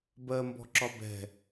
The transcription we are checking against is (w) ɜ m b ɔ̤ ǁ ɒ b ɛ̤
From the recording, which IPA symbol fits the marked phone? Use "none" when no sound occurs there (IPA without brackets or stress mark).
b